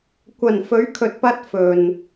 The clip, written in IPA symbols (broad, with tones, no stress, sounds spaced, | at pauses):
kʷ ɐ˨˩ n f ɵ˨˥ ɥ kʰ ɵ˨ t̚ p ɐ˧ t̚ f ɵ˨ n